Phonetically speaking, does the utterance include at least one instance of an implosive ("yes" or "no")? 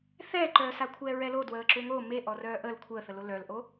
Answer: no